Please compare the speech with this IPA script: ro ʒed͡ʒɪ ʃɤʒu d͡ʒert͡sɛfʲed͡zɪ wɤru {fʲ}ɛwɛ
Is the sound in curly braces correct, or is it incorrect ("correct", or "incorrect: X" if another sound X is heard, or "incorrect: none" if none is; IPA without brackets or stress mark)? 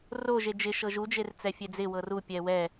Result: incorrect: pʲ